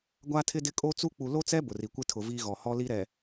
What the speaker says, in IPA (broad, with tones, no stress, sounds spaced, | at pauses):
ɡʷ a˦ tʰ ɪ˦ d ɪ˦ kʼ o˦ t͡s u˦ k͡p u˨ l o˦ t͡s ɛ˦ b ʊ˨ r i˨ kʷ ɪ˦ tʰ ʊ˨ v i˦ ɣ ɔ˨ h ɔ˦ l i˦ ɾ ɛ˨